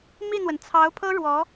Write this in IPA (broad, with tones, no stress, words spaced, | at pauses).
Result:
mi˥˩n̪wə˩n t͡sʰɑ˧˥ʊ̯pʰɤ˥ ɻwɔ˧˥